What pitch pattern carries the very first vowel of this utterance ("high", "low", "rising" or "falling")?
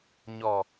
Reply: low